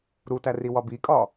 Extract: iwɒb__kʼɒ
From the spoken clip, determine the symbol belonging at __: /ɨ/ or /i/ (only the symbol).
i